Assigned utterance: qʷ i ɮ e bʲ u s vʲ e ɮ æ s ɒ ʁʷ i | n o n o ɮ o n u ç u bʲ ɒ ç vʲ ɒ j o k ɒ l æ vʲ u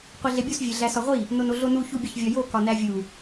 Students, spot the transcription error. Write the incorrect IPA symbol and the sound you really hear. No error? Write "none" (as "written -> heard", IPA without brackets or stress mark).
l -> n